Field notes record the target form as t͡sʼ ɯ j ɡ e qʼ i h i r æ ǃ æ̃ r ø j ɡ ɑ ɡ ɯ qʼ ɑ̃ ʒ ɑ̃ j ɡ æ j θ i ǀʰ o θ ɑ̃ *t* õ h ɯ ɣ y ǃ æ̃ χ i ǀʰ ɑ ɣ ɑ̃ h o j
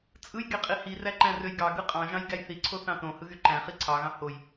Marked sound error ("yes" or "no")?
no